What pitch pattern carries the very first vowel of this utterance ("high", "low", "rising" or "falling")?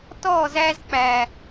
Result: falling